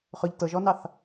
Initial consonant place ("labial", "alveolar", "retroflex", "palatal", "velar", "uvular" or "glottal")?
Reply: uvular